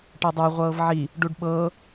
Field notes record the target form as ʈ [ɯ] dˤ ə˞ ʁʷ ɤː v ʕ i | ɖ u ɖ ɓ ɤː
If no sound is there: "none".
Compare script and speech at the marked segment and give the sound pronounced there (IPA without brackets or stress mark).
ɤ